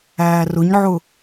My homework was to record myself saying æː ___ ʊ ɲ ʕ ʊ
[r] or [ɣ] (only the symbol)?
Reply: r